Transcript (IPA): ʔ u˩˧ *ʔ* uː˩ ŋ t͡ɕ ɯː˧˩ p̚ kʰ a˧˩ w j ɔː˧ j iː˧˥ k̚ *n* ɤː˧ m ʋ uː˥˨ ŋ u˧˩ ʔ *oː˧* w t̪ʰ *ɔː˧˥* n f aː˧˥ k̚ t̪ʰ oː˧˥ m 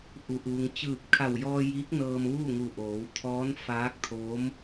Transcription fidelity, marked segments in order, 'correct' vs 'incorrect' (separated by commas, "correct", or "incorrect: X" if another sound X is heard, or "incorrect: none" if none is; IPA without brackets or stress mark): correct, correct, incorrect: oː˩˧, correct